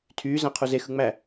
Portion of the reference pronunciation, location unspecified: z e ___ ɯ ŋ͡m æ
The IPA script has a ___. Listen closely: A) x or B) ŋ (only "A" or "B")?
A